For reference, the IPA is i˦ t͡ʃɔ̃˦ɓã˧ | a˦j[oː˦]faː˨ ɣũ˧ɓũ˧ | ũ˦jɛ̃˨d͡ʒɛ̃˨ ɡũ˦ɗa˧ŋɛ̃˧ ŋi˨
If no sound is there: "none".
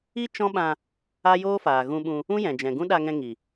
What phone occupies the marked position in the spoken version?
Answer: oː˦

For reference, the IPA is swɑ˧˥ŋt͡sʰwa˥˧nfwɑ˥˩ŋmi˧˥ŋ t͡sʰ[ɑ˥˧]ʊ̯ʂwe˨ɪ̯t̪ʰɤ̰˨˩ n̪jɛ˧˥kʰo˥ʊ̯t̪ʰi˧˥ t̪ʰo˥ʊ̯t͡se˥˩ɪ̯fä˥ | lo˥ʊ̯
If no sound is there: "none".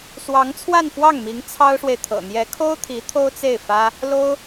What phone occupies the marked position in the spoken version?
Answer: ɑ˥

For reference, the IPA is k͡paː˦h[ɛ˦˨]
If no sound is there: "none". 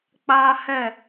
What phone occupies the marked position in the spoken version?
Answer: ɛ˦˨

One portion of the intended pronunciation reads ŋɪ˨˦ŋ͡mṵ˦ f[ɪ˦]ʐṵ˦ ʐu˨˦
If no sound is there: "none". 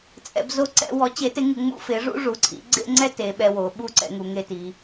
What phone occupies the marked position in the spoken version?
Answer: ɪ˨˦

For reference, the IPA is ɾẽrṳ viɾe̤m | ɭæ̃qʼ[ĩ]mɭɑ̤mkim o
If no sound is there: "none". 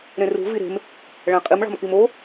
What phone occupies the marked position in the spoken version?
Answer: i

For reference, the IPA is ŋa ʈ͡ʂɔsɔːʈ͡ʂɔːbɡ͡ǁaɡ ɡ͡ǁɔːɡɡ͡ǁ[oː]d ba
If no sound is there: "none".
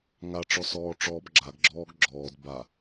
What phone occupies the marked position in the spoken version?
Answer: ɔː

